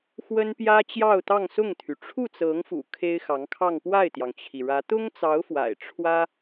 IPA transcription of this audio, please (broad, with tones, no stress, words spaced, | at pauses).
xwə˥npjä˥ t͡ɕjɑ˥˧ʊ̯t̪ɑ˥˧ŋsʊ˥˩ŋt̪ʰy˩ ʈ͡ʂʰu˥˩t͡sɤ˧˥ŋfṵ˨˩ kʰe˥ɪ̯xɑ˧˥ŋkʰɑ˥˧ŋ pwa˥˩ɪ̯t̪jɑ˩ŋt͡ɕʰi˩ɻä˧˥ t̪ʊ˥ŋt͡sɑ˧˥ʊ̯ fwa̰˨˩ɪ̯ ʈ͡ʂʰwä˥